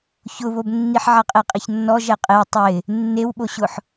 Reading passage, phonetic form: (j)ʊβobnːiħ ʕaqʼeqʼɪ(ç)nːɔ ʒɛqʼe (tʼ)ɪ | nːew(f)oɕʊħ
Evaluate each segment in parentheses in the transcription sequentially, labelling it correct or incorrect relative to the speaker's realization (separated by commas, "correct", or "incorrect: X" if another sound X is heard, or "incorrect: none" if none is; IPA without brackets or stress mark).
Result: incorrect: ç, correct, incorrect: tˤ, incorrect: ɓ